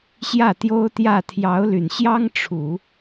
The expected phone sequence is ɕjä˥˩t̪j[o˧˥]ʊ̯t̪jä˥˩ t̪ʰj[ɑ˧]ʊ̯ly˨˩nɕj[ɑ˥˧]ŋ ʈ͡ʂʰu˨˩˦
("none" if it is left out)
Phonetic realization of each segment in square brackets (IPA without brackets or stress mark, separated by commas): o˥, ɑ˧˥, ɑ˥